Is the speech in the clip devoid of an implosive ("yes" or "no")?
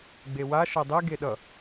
no